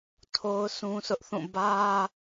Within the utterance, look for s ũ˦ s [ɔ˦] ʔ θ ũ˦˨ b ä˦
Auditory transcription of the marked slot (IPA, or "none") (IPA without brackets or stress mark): ʊ˦